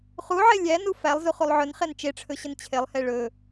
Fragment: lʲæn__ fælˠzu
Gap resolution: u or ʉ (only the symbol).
u